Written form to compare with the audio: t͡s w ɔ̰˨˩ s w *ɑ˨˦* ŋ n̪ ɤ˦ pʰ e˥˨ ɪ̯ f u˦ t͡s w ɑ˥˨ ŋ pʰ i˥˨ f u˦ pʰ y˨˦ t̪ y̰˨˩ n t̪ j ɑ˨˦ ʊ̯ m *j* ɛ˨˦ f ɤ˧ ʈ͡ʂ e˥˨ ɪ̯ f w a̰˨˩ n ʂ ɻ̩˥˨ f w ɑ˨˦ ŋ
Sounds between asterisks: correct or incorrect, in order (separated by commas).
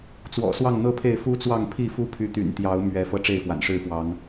incorrect, incorrect